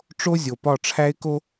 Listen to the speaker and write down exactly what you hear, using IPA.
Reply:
ʈ͡ʂ o˦ zʲ o˨ p ɒ˦˨ ʈ͡ʂʰ æ˦ ɪ̯ k o˦

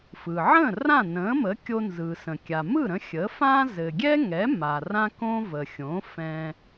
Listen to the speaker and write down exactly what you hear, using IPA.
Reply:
f ɯ˩ ʕ ə̃ː˥˩ r ã˥˩ n ə̃ː˩˥ m ə˩˥ kʲ o˧ n z ɯ˩ s ə̃˩ kʲ a˩ m ɯ˥˩ ɾ ə̃˧ xʲ ə˩˥ f ãː˥ z ɘ˩ ɡʲ ɛ˥ ŋ ɛ˩˥ m a˩ r ã˥ k õ˥ v ə˩ xʲ õ˩˥ f ɛ̃˧

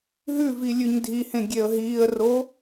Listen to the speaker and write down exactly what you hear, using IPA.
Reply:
ɦ ʉ v i lʲ ʉ ɲ dʱ i h ẽ ɡʲ e ə̯ ɦ iː ə̯ r o

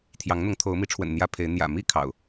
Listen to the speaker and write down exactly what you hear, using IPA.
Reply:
t̪ʰ j ɑ˨˦ ŋ n̪ ʊ˨˦ ŋ t̪ʰ o˨˦ ʊ̯ m i˨˦ ʈ͡ʂʰ w ə̰˨˩ n n̪ j ä˦ pʰ e˨˦ ɪ̯ n̪ j ä̰˨˩ m i˥˨ kʰ ɑ̰˨˩ ʊ̯

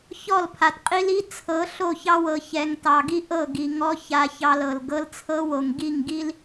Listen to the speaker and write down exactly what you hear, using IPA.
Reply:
ç ɔ˦˨ l pʰ a˨ t qʼ i˦ l i˦ t͡sʰ ɤ˨˦ ɬ o˦˨ ç ɑ˦ w ɤ˨ ç ɛ˨ ŋ t ɑ˨ ɡ i˦ ʔ ɤ˦˨ ɡ i˨ ŋ ɔ˦ ç a˨ ç ɑ˨ l ɤ˨ l ɡ ɤ˦ l t͡sʰ ɤ˦ w o˨ ŋ ɡ i˦˨ ŋ ɡ i˦ l

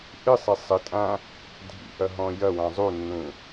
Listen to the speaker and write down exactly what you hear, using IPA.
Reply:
ʔ ɨ sˤ i sˤ ɪ tʼ ã | dʱ ḭ ʔ ɐ ɦ ɔ̃ j ɐ w ã zˤ u nː ũ

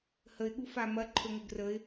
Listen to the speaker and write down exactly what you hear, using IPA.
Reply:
h ə ɪ̯ ɠ u f a m ɐ ǃʰ ɵ ŋ ɵ ɡ r ə ɪ̯

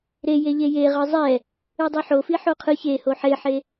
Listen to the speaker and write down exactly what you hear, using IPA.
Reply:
ɾ e j e ʎ e j e ʁ ɯ zˤ ɛ | ɯ dˤ i ħ o f i ħ o qʰ ɯ ç e h o ħ e ħ e

